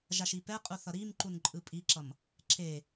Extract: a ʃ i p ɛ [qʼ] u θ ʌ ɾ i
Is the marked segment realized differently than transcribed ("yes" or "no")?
no